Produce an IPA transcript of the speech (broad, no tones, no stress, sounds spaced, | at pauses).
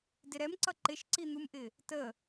d ɪ ɾ ɛ m ǀ ʌ ǃ ɪ ʃ ǀ i n̪ u m ʔ ɪ | t ə